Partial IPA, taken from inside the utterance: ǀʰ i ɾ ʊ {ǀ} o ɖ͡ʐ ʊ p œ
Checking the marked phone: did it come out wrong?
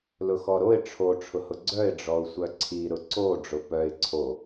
no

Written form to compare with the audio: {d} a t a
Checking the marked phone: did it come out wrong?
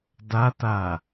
no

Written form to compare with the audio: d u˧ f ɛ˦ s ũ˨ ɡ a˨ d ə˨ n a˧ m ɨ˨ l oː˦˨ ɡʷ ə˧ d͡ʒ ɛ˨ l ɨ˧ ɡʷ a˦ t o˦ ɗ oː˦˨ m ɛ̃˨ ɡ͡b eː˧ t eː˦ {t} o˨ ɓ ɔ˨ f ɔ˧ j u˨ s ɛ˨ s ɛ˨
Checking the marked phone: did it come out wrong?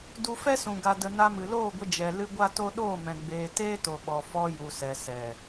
no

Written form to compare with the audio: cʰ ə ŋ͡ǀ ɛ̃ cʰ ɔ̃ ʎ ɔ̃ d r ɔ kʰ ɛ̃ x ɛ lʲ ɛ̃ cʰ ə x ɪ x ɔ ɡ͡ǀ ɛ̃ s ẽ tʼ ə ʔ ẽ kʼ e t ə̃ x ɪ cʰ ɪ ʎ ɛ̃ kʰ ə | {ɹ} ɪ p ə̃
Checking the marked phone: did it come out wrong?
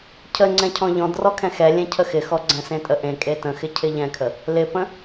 yes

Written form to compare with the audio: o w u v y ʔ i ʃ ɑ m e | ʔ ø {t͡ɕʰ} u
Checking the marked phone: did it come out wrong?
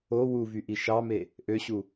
yes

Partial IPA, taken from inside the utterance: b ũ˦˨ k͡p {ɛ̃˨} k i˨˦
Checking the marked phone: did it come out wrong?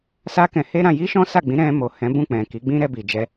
no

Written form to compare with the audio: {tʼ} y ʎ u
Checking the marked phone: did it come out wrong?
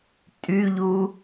no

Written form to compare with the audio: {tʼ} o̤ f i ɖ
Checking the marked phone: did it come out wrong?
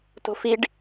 yes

